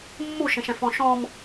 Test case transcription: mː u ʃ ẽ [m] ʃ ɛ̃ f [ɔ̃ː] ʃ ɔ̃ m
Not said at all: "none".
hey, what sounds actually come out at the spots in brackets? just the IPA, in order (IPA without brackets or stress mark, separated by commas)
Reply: none, ɔ̃